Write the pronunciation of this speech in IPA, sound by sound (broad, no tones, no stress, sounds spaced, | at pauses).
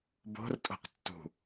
b o̤ r tʼ o̤ q tː ṳ